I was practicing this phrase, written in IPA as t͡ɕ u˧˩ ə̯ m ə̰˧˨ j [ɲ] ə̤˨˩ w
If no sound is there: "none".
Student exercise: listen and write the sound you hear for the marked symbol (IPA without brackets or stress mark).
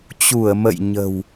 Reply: ɲ